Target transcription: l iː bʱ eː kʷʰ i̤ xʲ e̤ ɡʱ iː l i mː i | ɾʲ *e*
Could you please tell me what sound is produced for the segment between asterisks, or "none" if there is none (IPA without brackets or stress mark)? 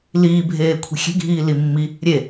e